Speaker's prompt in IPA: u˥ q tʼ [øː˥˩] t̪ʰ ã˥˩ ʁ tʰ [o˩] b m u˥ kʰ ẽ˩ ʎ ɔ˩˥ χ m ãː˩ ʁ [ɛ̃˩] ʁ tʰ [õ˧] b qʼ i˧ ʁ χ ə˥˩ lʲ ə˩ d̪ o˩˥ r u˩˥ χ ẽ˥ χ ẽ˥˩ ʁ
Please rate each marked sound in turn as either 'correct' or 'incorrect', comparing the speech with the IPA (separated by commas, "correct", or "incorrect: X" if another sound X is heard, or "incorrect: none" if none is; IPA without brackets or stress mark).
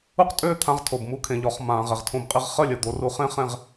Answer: correct, correct, incorrect: ɛ˩, correct